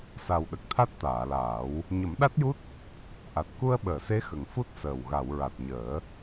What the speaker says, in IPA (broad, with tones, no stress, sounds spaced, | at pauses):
s a˨˩ w ɗ ə˨˩ k̚ t̪ʰ a˦˥ t̚ t̪ aː˨˩˨ l aː˨˩˦ w | ɲ ə˨˩˦ m ɗ a˦˥ t̚ j u˦˥ t̚ | ʔ a˨˩ t̚ k u˧ ə̯ ɓ əː˨˩˨ s e˧˥ x ə˨˩ ŋ f u˦˥ t̚ s əː˨˩ w ɣ a˨˩˨ w ɹ a˨˩ t̚ ɲ əː˨˩˦